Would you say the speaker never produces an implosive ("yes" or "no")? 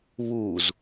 yes